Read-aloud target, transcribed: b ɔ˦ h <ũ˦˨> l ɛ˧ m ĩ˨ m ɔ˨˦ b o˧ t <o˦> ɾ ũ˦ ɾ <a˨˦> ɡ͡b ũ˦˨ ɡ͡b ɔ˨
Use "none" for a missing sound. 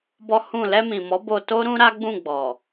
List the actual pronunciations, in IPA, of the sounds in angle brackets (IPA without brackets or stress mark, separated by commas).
ũ˦˨, o˦, a˦